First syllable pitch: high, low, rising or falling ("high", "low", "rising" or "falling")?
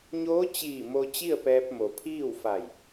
rising